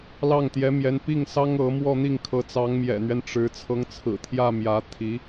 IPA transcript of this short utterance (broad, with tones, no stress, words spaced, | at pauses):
lɑ˥˩ŋt̪jɛ˧˥mjɛ˧˥n pi˥˩ŋsɑ˥ŋ ɤ˧˥mwɔ˥˧n̪i˥˩ŋ kʰɤ˧˥t͡sɑ˧˥ŋmjɛ̰˨˩n̪ɥɛ˦n ʈ͡ʂɻ̩˧˥ t͡sʰɤ˧˥ŋt͡sʰɹ̩˨˩t̪ʰjä˥˩ mjä˧˥t̪ʰi˧˥